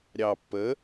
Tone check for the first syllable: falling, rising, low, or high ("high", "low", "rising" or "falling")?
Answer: low